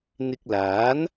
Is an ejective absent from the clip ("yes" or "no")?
yes